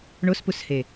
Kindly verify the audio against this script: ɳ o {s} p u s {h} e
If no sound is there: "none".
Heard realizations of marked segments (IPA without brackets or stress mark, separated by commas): s, h